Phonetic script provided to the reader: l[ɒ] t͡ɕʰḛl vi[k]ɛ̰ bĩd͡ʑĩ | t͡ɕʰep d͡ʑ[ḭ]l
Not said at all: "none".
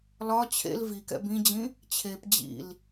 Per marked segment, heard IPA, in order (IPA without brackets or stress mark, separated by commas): ɒ, k, ḭ